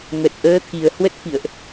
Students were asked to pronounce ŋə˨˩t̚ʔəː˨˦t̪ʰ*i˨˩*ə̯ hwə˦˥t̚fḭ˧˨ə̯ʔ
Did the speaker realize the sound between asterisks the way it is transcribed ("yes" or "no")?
yes